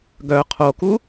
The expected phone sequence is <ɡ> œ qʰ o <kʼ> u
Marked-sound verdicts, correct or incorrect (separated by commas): correct, incorrect